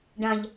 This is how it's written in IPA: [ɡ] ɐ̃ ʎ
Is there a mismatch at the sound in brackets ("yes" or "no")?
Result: yes